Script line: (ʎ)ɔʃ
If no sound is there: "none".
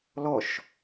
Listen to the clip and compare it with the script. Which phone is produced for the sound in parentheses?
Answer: l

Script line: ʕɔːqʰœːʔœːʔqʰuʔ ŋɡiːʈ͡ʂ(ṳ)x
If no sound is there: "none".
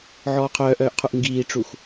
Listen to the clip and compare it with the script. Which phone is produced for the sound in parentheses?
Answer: u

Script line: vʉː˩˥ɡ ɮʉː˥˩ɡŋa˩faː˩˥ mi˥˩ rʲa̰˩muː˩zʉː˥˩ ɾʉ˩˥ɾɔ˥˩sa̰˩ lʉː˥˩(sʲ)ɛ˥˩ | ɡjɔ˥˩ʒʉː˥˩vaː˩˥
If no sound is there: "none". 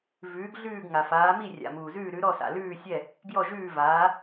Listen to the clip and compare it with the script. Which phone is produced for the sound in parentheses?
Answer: sʲ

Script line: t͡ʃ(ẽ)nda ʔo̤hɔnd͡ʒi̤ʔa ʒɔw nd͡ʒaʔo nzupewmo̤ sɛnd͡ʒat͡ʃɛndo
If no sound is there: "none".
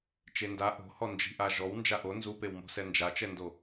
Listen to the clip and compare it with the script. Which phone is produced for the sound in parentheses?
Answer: e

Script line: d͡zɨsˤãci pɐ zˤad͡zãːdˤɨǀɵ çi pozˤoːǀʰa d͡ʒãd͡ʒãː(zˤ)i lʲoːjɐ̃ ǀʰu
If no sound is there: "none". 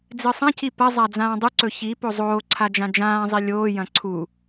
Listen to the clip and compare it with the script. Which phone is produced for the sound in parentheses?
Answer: zˤ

